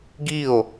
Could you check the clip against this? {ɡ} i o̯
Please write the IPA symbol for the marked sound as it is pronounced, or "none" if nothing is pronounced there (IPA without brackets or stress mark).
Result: ɡ